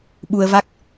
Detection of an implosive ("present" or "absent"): present